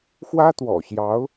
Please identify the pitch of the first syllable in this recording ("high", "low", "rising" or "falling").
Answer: high